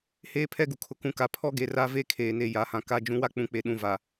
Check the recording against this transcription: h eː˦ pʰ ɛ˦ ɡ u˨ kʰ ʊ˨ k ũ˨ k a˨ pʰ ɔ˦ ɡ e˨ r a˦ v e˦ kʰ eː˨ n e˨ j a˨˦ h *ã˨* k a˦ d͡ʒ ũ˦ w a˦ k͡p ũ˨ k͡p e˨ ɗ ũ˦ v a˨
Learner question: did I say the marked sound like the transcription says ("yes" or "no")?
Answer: yes